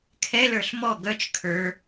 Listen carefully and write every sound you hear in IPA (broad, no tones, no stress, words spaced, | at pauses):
kʰɛlə˞ɬ mɔ ɡœt͡ʃ kʰə˞